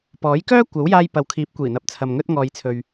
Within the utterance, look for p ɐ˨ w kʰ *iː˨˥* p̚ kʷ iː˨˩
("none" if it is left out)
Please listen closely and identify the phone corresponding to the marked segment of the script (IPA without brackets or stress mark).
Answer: iː˨˥